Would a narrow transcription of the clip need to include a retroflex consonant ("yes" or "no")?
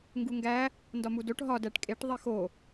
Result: yes